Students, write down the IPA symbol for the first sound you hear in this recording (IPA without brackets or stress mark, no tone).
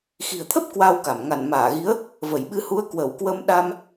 x